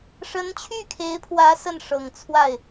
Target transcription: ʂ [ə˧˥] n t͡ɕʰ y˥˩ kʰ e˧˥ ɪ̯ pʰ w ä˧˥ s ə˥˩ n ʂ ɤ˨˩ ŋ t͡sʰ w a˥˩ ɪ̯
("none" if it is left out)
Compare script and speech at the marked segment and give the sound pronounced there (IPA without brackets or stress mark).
ə˧˥